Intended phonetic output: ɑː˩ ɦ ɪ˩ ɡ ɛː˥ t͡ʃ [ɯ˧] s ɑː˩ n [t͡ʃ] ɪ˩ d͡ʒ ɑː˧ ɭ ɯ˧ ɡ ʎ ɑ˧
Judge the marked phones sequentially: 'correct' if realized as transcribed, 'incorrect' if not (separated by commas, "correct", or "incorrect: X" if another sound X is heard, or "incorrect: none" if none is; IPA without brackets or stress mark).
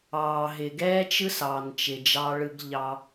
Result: incorrect: ɯ˥, correct